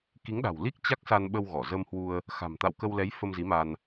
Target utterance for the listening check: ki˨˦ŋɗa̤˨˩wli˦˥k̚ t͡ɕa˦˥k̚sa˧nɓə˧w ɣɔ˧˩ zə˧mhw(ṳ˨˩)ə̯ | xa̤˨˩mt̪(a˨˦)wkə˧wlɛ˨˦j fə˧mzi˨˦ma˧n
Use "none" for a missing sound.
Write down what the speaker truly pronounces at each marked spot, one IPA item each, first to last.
u˧, a̰˧˨

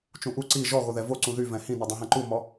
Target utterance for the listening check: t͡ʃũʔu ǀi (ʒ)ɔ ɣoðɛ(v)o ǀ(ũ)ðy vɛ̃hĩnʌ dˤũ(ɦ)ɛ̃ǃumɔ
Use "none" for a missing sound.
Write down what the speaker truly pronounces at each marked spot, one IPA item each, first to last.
ʒ, v, ũ, ɦ

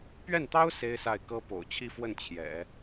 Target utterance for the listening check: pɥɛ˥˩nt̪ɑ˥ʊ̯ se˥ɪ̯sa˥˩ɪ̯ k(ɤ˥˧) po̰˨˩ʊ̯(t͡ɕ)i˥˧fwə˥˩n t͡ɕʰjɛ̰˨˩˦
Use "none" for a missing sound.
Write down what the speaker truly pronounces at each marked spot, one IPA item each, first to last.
ɤ˥, t͡ɕʰ

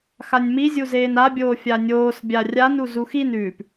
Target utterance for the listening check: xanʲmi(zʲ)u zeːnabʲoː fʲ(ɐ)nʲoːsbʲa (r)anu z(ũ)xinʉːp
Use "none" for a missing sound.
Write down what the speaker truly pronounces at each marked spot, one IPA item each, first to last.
zʲ, a, rʲ, u

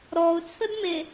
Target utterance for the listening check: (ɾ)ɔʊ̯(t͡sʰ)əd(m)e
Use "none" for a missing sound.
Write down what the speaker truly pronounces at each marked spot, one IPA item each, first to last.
ɾ, t͡sʰ, m

